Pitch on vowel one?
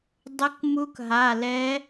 rising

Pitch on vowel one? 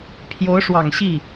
rising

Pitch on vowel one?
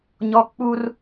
high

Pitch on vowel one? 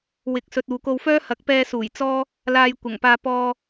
rising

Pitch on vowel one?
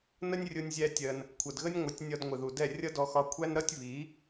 high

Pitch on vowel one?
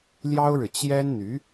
high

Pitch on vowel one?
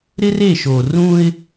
high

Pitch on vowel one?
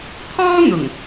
high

